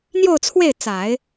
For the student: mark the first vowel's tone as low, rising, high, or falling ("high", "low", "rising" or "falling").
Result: falling